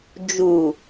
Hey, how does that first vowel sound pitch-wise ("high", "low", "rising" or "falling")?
low